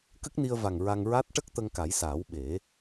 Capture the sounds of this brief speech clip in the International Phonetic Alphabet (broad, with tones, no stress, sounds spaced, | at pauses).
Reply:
k ə˦˥ k̚ n i˧ ə̯ v a˨˩ ŋ ɹ a˧ ŋ ɹ a˦˥ t̚ ʈ ə˦˥ k̚ t̪ ə˧ ŋ k a˨˩˦ j s aː˨˩˦ w ɓ e˨˩˦